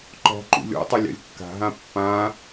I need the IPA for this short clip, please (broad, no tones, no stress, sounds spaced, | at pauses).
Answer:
ǃ ɔ̤ ǃ ṵ lʲ ɔ̰ tˤ ɘ lʲ a̰ lʲ kː a̤ ɦ ã pː ã